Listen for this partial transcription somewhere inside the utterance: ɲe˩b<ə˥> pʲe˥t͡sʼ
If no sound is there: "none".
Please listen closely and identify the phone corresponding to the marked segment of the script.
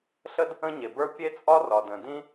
ə˞˥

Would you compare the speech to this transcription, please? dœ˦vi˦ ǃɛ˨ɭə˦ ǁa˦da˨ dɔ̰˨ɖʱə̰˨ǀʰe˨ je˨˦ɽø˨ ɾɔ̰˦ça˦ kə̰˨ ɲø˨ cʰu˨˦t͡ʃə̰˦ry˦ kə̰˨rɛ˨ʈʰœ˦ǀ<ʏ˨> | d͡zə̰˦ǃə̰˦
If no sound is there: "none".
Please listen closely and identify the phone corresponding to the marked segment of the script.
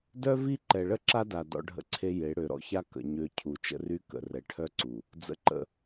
u˨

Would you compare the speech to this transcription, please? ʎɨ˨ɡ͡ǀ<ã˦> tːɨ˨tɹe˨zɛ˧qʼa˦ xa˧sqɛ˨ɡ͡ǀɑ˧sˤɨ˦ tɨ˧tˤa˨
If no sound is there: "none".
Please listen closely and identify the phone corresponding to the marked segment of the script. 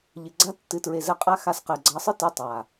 a˦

